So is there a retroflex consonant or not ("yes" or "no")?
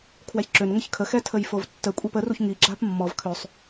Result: no